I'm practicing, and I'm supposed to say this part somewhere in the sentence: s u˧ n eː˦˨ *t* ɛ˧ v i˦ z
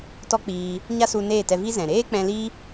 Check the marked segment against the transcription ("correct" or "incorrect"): correct